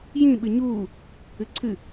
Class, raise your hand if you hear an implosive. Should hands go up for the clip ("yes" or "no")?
yes